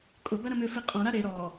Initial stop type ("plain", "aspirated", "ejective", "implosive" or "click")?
ejective